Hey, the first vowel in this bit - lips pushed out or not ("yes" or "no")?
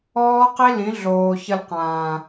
yes